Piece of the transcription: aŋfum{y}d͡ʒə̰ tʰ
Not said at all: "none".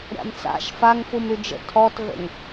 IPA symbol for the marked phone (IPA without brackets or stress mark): y